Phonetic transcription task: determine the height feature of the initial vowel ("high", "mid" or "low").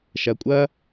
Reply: low